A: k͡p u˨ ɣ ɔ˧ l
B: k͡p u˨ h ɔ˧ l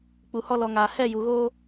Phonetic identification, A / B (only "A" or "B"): B